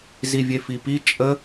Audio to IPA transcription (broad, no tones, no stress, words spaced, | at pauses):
zivʲefipi t͡ʃʼə